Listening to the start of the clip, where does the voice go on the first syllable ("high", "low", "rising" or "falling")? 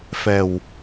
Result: low